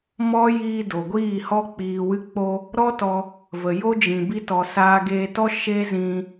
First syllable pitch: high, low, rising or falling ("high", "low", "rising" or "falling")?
high